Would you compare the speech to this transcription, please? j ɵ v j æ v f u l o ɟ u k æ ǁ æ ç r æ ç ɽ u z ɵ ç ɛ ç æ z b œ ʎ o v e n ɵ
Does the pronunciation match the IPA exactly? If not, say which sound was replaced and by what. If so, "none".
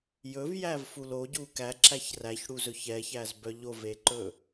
n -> ǃ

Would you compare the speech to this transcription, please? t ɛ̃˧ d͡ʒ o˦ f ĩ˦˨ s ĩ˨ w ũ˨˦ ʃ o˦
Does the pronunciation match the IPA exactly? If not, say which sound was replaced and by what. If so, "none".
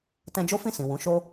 none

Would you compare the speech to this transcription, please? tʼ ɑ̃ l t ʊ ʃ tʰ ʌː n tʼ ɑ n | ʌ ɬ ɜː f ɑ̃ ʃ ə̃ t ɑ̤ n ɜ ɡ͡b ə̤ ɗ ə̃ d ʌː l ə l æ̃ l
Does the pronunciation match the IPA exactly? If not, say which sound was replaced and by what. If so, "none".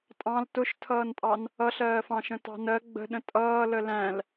d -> tʼ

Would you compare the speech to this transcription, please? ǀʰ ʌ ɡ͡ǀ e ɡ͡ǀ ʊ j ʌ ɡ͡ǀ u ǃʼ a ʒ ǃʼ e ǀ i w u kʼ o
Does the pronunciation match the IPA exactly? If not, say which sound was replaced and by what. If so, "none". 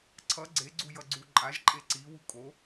ʊ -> u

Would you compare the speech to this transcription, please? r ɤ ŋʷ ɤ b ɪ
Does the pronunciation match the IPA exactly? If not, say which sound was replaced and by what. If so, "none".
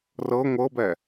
ɪ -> ɛ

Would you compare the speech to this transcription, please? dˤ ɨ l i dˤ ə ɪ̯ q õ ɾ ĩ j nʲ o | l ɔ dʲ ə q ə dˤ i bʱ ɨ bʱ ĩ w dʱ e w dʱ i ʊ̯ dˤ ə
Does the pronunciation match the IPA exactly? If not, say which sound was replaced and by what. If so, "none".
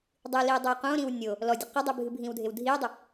j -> w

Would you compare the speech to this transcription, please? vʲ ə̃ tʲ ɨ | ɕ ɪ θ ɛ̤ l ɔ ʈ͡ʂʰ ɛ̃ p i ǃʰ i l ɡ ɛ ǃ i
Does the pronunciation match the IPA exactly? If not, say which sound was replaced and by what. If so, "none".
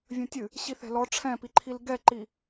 ɪ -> i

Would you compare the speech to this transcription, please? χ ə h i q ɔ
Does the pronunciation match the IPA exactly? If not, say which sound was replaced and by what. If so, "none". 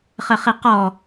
h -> χ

